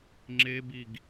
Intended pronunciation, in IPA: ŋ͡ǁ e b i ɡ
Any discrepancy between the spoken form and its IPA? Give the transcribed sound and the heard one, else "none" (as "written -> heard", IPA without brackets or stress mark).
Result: none